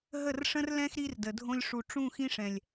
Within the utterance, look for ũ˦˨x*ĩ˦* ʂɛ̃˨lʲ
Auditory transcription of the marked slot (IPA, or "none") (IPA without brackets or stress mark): ĩ˦